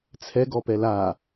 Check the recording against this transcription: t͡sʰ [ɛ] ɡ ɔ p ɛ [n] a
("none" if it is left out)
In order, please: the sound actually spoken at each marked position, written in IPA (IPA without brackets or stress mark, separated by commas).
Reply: ɛ, l